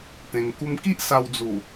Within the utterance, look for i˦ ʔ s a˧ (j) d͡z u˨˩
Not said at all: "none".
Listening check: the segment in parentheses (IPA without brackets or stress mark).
w